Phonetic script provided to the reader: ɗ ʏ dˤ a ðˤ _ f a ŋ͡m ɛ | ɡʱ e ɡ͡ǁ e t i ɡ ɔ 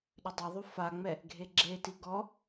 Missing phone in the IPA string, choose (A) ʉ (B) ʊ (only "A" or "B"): A